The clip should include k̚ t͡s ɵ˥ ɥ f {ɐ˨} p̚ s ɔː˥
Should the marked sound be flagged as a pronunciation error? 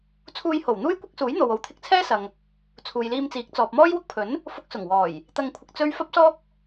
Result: yes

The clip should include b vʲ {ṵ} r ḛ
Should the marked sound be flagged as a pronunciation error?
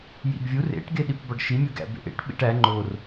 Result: yes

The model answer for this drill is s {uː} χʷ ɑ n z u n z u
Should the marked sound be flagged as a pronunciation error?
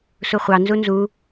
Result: yes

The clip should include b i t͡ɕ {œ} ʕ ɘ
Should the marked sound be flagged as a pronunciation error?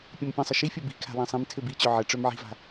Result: no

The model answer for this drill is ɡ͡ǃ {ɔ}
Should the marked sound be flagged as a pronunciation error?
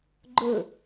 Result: yes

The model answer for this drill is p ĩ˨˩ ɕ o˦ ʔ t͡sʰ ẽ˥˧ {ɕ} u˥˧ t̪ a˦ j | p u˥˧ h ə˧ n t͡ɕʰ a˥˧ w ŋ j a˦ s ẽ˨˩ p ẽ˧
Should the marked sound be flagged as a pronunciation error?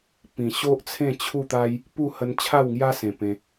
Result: yes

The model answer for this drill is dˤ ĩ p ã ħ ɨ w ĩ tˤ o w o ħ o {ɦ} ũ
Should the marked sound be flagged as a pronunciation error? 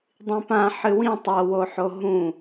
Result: no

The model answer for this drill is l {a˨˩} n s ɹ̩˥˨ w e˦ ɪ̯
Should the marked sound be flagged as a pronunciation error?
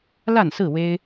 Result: yes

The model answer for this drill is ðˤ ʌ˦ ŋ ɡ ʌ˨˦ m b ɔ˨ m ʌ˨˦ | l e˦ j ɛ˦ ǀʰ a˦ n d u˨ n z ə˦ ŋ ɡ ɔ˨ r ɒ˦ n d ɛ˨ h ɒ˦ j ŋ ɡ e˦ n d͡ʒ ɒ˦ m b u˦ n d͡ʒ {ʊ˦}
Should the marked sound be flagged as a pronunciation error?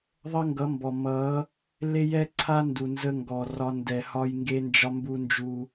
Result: yes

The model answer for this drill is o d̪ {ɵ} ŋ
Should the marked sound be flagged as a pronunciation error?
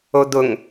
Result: yes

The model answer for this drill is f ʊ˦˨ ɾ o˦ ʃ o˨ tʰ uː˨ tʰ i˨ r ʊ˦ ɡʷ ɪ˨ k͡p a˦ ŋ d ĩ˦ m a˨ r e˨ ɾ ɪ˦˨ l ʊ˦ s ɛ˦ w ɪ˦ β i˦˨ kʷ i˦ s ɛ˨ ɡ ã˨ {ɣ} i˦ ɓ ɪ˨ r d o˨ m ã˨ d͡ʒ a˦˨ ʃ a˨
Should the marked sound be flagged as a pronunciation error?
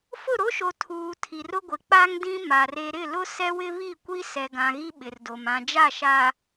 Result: no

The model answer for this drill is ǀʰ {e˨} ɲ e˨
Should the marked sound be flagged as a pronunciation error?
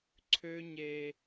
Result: yes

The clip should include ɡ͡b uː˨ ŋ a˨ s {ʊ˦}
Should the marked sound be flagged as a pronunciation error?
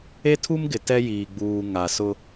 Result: no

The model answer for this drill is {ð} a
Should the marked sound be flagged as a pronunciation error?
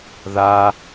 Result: no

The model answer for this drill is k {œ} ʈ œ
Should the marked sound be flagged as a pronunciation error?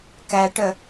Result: yes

